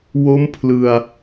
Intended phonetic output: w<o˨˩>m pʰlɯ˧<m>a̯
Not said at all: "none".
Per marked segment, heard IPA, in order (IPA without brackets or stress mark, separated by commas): o˦˥, none